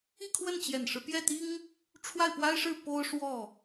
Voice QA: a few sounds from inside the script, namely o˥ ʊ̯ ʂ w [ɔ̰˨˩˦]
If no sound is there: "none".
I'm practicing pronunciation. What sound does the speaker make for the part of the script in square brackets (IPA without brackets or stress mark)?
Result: ɔ˥˩